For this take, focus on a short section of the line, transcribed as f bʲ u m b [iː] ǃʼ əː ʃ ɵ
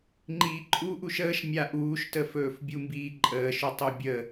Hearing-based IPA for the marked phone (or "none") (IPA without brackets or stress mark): iː